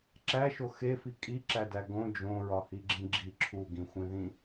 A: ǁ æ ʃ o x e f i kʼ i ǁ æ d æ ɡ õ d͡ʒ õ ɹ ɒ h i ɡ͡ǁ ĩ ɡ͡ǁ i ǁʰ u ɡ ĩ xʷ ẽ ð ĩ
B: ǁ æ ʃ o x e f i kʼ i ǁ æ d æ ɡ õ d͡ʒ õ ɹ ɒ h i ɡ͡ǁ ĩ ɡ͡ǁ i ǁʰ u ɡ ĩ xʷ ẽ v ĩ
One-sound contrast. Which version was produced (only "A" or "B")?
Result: A